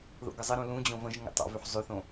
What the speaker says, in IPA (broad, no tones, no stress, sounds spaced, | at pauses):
ð o̰ ɡ ə zˤ ə ɾ ũ l ũ d͡ʑ õ v ə̃ ʒ ŋ ə̰ tˤ o̰ v ʉ ħ zˤ ʉ θ õ